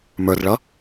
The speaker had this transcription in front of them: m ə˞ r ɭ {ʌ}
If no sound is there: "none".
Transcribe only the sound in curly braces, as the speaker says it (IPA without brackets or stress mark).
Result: ʌ